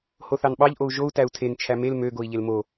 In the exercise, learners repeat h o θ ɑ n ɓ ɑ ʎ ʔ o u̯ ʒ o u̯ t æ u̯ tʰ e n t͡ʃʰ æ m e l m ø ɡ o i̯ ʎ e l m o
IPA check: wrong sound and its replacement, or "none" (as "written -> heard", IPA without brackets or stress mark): none